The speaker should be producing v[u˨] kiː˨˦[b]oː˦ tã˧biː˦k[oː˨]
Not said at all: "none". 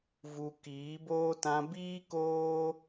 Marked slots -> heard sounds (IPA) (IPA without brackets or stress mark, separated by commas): u˨, b, oː˦